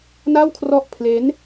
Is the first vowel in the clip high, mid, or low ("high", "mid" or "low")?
low